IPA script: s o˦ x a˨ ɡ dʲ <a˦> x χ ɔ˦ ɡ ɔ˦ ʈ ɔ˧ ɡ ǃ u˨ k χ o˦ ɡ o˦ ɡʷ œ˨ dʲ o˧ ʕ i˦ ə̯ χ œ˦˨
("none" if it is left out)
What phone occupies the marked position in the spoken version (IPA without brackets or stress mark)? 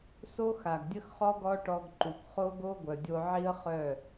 ə˦